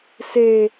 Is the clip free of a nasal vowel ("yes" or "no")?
yes